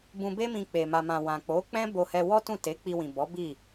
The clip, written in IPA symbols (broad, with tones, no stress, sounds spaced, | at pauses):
b ũ˧ b e˦ m ĩ˧ k͡p e˨ m a˨ m ã˨ w ã˨ k͡p o˨˦ k͡p ɛ̃˦ b o˧ h ɛ˧ w ɔ˦ t ũ˦˨ t e˨˦ k͡p i˧ w ĩ˨ b ɔ˨˦ b i˦˨